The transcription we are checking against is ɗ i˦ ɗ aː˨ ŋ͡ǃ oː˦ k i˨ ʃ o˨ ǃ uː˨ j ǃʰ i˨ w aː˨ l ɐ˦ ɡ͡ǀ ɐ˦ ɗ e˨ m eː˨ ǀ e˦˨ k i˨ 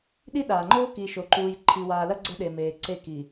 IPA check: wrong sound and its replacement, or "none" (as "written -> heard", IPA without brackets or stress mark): none